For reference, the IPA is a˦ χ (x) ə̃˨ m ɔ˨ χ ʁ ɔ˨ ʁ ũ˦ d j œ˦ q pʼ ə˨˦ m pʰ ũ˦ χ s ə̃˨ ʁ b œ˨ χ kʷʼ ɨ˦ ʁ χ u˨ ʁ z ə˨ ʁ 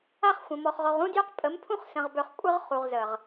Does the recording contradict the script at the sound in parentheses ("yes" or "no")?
yes